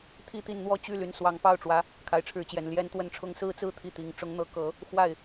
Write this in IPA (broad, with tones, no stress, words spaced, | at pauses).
t̪ʰi˥˧t̪i˥˩nn̪wɔ˥ t͡ɕy˥˩ ly˧˥nswɑ˧˥ŋpɑ˥˩ʊ̯ʈ͡ʂwä˧˥ | kʰa˧˥ɪ̯ʈ͡ʂʰɻ̩˧˥t͡ɕjɛ˨˩n ljɛ˥nt̪wə˥˧nʈ͡ʂʰʊ˥˧ŋ sɹ̩˥˧t͡sɹ̩˥˧ t̪ʰi˥˩t̪i˨˩ŋ ʈ͡ʂʊ˧˥ŋn̪ɤ˧˥kɤ˨˩˦ | xwa˥˩ɪ̯